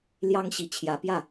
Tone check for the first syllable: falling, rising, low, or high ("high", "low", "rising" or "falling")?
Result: high